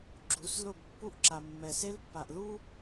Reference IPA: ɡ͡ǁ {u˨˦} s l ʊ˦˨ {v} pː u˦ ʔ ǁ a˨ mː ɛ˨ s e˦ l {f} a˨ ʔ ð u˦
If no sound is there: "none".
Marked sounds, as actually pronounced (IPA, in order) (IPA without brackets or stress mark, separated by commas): u˨˦, b, pː